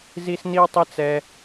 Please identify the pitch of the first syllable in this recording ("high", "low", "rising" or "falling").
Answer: high